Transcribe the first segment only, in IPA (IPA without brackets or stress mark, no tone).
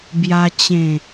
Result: b